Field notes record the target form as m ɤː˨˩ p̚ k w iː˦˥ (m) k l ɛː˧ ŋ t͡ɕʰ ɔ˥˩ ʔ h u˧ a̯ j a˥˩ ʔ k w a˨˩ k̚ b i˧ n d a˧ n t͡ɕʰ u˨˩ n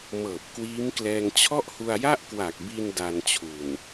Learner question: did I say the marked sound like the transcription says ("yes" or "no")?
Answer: yes